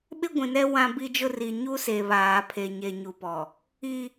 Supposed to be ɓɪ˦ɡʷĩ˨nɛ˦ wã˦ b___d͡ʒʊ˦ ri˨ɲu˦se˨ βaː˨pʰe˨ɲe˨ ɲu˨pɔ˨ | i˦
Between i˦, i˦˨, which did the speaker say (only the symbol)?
i˦